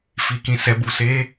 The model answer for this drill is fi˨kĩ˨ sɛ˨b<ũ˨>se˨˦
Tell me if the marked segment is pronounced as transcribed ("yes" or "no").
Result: no